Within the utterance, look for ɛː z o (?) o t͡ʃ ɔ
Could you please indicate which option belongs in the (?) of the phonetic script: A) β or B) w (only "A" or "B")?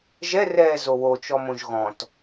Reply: B